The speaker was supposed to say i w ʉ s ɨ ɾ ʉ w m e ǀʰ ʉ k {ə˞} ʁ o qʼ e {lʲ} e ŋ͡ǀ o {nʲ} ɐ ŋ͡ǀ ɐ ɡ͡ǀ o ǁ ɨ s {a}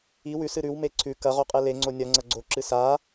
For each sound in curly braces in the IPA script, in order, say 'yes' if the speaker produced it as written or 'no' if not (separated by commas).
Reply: no, no, yes, yes